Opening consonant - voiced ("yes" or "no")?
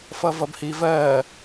no